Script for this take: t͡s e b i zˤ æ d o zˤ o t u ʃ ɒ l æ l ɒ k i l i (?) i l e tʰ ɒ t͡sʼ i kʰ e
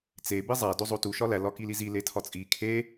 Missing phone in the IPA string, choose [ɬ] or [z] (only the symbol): z